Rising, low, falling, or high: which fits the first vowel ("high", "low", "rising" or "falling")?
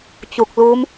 low